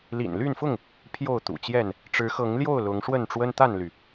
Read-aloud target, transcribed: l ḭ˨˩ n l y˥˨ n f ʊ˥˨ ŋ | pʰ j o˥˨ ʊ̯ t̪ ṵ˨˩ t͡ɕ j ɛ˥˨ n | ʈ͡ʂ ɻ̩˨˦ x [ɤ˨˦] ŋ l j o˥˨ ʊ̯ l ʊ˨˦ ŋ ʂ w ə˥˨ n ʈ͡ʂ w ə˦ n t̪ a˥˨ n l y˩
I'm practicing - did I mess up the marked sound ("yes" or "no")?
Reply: no